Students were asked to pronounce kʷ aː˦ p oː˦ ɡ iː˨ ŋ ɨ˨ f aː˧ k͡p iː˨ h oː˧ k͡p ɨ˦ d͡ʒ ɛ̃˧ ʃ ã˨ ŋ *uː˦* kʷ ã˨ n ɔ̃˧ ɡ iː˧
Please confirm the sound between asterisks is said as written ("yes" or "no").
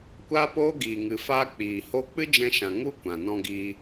no